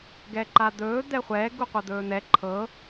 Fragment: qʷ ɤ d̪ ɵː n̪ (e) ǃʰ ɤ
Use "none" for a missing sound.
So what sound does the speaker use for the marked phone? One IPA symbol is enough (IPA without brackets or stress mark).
ɛ